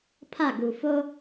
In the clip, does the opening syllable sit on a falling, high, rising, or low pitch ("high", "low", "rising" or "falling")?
falling